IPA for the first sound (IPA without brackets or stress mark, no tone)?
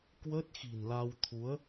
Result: k